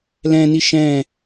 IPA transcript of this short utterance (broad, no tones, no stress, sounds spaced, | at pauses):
l ɛ̃ n i ʃ ɛ̃